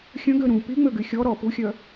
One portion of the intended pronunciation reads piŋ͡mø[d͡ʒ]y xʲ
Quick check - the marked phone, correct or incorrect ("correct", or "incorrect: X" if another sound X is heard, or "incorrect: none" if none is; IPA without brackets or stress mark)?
incorrect: ɡ